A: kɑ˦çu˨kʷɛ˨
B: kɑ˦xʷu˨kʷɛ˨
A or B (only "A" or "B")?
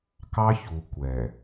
A